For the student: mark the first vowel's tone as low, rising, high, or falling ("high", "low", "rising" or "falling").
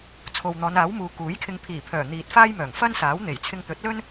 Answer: low